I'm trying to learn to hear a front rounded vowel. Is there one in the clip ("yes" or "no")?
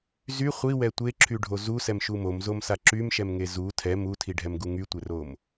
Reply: yes